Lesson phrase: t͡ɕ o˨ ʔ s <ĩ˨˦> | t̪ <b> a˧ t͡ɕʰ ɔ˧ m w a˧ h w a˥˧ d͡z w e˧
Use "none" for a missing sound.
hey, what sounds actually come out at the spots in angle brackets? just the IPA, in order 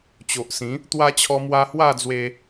ĩ˨˦, w

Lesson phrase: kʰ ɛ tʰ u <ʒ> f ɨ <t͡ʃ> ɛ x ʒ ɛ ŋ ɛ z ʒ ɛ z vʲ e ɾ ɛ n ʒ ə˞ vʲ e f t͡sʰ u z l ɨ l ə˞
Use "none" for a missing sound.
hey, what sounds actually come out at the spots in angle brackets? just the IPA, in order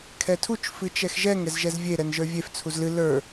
t͡ʃ, t͡ʃ

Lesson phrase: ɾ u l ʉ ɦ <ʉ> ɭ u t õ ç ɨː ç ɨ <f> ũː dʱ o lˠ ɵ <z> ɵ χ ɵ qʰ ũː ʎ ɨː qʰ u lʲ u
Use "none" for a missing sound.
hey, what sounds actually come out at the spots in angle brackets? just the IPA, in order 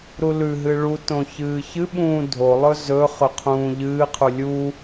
ɨ, ɓ, z

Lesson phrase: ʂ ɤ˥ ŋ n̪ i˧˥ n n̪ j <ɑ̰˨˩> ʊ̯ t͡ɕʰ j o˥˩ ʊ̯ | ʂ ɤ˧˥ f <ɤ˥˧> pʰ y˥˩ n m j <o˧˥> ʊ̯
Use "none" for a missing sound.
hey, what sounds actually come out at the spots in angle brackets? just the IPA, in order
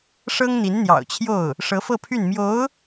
ɑ̰˨˩, ɤ˥˧, o˧˥

